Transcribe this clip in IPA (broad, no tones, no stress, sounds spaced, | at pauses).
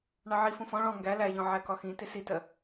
ɳ ɑ ʕ i f ũ f ɔ̃ ɭ ɔ̃ ŋ ɡ æ l æ ʎ ɔ̃ ʕ æ k ɒ x ĩ t ɪ s i t ɜ